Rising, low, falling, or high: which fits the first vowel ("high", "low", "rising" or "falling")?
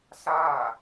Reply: falling